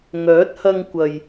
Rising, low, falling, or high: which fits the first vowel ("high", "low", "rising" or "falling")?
rising